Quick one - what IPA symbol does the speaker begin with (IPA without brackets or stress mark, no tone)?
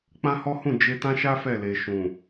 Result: k͡p